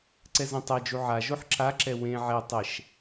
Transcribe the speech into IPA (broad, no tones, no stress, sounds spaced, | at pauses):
ǀ ɛ z ẽ tˤ ɛ d͡ʒ u ʕ a ʒ o ħ ǁ a ǁ ɛ w ẽ ʕ ɛ tˤ ɛ ʃ